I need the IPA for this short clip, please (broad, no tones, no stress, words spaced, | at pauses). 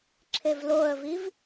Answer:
ǁʰevloə̯viv